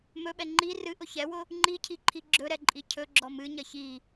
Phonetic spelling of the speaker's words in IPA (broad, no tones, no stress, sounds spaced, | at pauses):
m ɵ ɓ ɛ ŋ͡ǃ i r ɨ ʔ ʊ ç ɛ w ʊ | ŋ͡ǃ i cʰ i ǃʰ i ɡ͡ǁ ɵ ɾ ɛ ǃʼ i cʰ ɵ ɡ͡ǁ ɔ m ɨ ɲ ɐ ç i